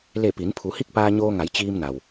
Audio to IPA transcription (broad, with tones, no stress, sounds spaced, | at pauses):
l e˧˩ p i˩˧ n pʰ u˩˧ h i˥˨ k̚ p aː˧ ɲ oː˧ ŋ a˩˧ j t͡ɕ iː˧ m n a˩ w